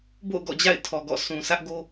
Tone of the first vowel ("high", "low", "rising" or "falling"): falling